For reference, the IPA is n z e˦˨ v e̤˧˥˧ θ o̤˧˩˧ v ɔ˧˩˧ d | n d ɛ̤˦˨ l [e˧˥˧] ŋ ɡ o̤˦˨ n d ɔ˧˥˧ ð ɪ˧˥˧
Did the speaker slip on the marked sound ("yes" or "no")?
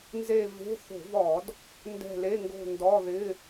no